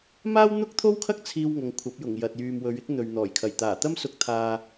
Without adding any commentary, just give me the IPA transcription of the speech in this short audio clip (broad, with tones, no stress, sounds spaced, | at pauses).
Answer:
m aː˥ w n̪ ʊ˥ k̚ t̪ʰ o˥ w kʰ ɐ˥ k̚ t͡sʰ iː˧ w ŋ ɐ˨˧ ŋ kʷʰ ɐ˨˥ p̚ j ʊ˨˩ ŋ j ɐ˨ t̚ j yː˨ m w ɵ˨˧ ɥ ɪ˥ k̚ n̪ ɵ˨ ɥ n̪ ɔː˨˩ j kʰ ɐ˨˩ j t̪ aː˨˩ t̪ ɐ˥ m s ʊ˧ k̚ t̪ʰ aː˧